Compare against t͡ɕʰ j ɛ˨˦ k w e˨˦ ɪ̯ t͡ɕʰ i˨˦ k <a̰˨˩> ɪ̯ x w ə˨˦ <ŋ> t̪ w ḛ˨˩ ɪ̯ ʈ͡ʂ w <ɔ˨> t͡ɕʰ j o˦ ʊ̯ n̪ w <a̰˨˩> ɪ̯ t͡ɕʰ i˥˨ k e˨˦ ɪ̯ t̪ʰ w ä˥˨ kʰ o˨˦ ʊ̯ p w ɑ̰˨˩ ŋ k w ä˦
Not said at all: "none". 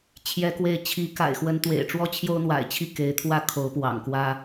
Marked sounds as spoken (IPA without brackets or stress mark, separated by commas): a̰˨˩, n, ɔ˦, a̰˨˩